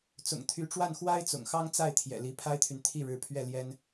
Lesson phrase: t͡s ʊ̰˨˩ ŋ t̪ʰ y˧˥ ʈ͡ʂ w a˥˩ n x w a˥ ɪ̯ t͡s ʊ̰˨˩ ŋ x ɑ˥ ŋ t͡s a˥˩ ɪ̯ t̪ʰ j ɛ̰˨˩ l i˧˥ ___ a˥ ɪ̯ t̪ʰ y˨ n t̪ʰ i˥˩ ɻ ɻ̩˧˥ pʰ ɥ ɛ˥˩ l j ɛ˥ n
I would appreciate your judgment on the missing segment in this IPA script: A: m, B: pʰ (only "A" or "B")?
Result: B